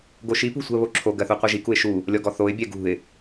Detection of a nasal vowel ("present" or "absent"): absent